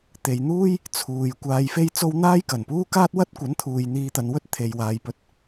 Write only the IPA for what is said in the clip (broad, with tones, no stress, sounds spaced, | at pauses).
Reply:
t̪ e˨ j n̪ uː˥ j | t͡sʰ uː˨ j kʷ aː˨ j f e˧ j t͡s o˥ w n̪ aː˥ j k ɐ˨˩ n p uː˥ k aː˥ t̚ w ɐ˥ t̚ kʷ ɐ˨˥ n t̪ʰ uː˨ j n̪ iː˧ t̪ ɐ˨˧ n w ɵ˥ t̚ t̪ʰ e˨ j w aː˨ j p ɵ˧ t̚